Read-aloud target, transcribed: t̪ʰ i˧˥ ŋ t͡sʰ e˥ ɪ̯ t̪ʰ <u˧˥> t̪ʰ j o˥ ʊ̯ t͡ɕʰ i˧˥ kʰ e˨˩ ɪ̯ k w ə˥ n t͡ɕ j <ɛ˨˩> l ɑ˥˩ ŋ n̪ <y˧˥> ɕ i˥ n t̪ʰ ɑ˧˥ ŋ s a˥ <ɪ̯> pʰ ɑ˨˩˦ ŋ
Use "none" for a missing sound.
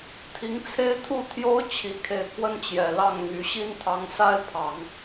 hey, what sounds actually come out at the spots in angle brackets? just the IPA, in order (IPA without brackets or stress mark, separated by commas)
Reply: u˥˩, ɛ˨˩, y˧˥, ɪ̯